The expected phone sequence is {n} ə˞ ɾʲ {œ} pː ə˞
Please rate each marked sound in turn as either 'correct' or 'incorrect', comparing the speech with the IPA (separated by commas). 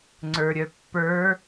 incorrect, correct